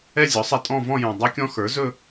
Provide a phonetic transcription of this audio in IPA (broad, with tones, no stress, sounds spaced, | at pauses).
ɛ˥˧ zʲ ɔ˩˥ sˤ ɛ˧ tʼ ɔ̃˥˧ v ɔ̃˥˧ j ũ˨˩ dˤ ɵ˦˥ kʲ ɔ̃˦˥ x ə˞˩˥ z ɵ˥˧